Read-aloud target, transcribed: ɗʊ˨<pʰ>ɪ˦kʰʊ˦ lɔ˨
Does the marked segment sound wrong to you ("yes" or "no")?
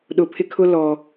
no